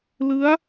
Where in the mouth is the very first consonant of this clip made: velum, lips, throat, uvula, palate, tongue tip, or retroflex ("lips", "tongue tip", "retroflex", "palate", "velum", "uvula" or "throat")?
tongue tip